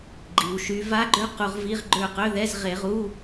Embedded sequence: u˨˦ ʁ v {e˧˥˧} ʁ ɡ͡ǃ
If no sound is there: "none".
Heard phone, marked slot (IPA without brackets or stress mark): i˧˥˧